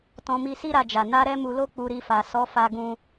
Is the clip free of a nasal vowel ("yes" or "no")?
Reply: no